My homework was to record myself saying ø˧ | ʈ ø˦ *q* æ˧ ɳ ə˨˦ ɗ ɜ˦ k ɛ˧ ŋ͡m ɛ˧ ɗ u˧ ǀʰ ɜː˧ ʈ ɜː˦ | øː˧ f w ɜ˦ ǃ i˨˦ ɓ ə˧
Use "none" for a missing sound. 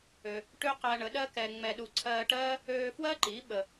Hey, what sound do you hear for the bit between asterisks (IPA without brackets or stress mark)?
q